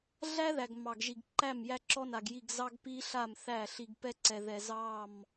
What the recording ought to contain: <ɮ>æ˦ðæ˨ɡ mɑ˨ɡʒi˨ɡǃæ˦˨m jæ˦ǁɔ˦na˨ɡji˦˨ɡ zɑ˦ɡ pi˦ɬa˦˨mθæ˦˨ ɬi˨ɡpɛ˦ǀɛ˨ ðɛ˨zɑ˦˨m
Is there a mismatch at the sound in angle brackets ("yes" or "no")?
no